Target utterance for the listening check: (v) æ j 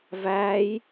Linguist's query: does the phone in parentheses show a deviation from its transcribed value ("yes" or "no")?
no